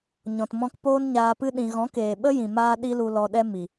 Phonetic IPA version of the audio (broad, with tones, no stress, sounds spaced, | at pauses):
ɲ ɔ̃˨ t m ɔ̃˧ k p oː˦ n ɲ aː˧ p ɨ˦ ɗ ĩ˧ ɣ ɔ̃˨˦ k eː˨ ɓ ə˦ j ĩ˨ m aː˦ ɗ i˦ l u˧ l ɔ˧ ɗ ɛ˦ m i˨